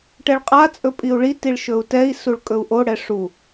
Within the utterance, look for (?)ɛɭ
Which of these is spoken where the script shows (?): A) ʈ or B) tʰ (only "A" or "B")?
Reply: A